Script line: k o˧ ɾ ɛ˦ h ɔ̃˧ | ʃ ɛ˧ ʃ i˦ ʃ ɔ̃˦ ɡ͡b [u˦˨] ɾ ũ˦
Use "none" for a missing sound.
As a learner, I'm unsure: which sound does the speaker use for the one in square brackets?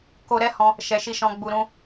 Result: u˧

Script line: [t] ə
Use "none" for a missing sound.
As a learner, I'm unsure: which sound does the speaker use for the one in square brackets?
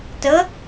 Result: t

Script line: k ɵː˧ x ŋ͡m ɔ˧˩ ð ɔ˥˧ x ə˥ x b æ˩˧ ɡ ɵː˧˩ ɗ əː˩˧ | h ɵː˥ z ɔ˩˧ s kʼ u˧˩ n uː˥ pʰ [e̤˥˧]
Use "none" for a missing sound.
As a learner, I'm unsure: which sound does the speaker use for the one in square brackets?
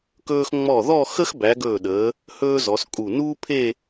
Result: e˥˧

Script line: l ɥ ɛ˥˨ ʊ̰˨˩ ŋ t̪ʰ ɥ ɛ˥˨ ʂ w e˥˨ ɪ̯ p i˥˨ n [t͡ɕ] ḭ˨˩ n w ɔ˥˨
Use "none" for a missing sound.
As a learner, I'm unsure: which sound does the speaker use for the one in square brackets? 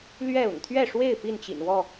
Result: t͡ɕ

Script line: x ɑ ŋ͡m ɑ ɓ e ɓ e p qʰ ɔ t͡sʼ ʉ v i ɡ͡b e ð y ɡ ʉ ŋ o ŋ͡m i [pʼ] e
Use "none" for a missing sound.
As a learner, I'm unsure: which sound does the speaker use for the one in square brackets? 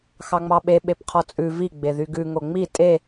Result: tʼ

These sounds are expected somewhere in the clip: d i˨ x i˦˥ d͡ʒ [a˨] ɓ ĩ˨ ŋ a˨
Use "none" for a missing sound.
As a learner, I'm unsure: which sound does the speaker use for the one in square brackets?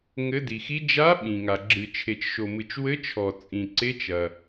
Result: a˦˥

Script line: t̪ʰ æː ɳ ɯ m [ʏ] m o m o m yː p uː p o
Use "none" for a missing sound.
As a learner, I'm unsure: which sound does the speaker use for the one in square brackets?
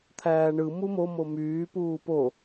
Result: u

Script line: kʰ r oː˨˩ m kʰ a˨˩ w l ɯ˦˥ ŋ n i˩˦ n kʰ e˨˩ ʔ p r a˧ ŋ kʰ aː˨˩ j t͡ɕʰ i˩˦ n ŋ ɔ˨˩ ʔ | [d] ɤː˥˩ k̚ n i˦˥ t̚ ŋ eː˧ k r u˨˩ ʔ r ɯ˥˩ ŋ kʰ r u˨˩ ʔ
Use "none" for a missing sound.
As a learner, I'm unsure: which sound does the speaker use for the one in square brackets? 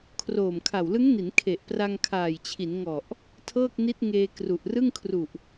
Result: tʰ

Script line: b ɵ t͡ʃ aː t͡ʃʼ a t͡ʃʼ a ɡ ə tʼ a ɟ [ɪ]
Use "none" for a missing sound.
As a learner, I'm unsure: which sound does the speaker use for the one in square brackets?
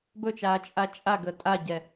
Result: ɛ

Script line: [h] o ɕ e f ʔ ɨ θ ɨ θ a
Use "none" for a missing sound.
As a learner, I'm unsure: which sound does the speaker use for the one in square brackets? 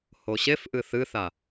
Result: h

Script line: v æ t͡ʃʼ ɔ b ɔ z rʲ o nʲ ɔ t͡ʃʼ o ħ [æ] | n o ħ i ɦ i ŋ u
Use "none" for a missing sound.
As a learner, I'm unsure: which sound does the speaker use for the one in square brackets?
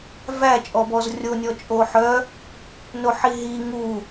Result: œ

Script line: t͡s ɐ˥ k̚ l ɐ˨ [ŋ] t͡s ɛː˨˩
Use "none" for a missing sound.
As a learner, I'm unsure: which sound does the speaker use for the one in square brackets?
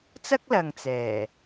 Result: ŋ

